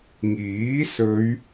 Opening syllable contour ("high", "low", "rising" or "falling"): rising